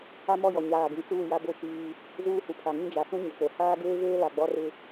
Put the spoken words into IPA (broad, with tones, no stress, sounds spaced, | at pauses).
a˦ m ɔ˦˨ j ɔ˨ ɲ aː˨ ɡ ĩ˨ t͡s uː˦˨ j a˦ b o˦˨ t͡ʃ iː˦ | z uː˦ h u˨ pʰ a˨ ŋ ĩ˦ d͡ʒ a˨ s ũ˦ ɲ o˨ k͡p o˨ h aː˦ ɡ eː˦ v eː˦ l a˨ ɡ͡b ɔ˦ r ɪ˦